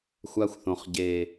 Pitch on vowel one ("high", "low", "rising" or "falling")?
high